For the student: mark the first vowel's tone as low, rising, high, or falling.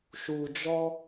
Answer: low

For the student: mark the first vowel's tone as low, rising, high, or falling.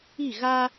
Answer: falling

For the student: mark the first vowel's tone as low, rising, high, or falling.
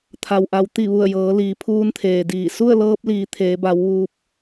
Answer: low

